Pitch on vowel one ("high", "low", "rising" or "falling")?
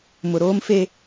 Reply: low